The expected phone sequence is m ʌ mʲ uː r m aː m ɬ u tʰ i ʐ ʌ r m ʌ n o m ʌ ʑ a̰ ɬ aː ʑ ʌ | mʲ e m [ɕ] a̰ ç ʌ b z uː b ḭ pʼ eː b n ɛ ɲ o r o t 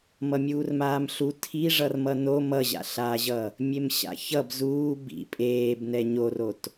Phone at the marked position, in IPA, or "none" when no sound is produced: ɕ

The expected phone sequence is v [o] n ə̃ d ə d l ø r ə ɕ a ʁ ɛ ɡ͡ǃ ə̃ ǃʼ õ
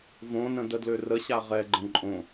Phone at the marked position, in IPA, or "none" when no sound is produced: õ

